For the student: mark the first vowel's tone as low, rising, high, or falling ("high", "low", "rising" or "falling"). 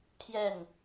falling